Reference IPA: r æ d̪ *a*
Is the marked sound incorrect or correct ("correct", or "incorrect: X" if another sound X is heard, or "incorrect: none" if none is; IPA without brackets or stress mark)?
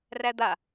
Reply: correct